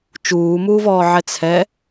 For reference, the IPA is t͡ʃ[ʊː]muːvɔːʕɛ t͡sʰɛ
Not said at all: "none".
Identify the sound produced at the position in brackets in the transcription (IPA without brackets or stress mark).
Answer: uː